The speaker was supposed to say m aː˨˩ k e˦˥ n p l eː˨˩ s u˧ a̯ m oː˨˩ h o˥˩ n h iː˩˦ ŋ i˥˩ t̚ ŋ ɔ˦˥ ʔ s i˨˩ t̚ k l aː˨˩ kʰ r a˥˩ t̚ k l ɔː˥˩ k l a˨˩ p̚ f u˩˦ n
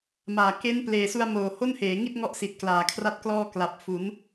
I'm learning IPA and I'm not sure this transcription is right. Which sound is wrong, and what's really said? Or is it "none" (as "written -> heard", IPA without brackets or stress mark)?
iː˩˦ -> eː˩˦